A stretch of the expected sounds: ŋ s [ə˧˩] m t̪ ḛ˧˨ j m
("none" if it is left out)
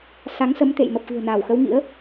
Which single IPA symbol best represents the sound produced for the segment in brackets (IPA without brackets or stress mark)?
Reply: ə˨˦